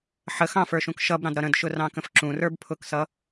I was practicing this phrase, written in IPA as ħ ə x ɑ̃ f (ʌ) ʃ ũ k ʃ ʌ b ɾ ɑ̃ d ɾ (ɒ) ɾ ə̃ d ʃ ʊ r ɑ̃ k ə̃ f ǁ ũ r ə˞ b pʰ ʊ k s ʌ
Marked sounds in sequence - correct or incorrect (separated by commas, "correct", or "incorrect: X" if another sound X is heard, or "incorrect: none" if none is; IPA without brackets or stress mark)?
incorrect: ə˞, incorrect: ʌ